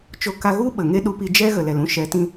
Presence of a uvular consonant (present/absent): absent